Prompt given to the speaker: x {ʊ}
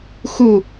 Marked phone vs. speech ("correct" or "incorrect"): incorrect